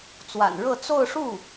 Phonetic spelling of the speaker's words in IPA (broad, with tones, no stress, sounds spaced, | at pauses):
t͡s w a̰˨˩ n ɻ ɤ˥˧ t͡s o˥˧ ʊ̯ ʂ u˥˩